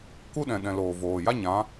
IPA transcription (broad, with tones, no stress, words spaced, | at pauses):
ku˦ɗɛ̃˨ɗɛ̃˨ loː˨voː˨ ja˦ɲã˨˦